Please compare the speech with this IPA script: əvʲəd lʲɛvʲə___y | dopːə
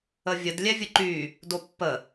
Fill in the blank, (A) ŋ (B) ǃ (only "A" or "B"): B